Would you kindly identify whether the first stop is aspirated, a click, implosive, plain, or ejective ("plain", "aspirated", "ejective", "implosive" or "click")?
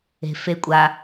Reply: ejective